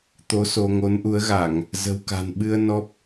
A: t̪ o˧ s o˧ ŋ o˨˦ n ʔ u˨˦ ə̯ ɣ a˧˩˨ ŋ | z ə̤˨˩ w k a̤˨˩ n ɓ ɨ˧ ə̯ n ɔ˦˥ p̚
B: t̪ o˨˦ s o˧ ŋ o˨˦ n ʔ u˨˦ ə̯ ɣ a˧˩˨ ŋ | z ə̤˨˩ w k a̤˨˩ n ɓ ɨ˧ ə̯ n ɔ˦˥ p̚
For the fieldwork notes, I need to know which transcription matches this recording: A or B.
B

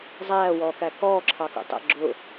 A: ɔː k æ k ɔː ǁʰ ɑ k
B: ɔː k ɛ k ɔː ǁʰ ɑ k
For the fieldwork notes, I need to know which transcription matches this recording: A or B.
A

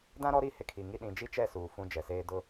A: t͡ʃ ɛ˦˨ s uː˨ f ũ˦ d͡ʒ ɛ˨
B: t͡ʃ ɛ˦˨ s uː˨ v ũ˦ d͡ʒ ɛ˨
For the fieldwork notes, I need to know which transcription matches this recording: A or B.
A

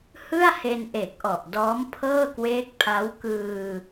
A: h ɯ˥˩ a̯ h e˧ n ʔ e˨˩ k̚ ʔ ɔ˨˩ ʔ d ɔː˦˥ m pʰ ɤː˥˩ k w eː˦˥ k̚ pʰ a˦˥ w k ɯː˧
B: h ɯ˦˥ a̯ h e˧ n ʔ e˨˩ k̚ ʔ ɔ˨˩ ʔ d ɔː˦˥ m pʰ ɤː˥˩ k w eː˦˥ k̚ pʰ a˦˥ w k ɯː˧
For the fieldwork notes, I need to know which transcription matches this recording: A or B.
A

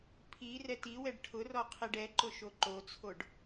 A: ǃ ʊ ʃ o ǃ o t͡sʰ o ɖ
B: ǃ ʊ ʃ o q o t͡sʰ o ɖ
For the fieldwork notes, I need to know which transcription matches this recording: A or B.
A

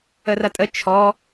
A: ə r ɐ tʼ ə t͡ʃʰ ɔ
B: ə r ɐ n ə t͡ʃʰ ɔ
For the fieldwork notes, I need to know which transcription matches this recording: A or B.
A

